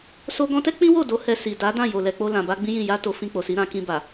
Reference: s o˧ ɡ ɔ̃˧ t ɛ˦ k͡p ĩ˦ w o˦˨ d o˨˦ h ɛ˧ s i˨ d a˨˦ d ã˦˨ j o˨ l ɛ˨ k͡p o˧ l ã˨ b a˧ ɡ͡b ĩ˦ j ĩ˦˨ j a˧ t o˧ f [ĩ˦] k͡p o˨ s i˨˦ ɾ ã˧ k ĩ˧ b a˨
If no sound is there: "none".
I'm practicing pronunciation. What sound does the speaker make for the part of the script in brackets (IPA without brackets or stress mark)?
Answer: ĩ˧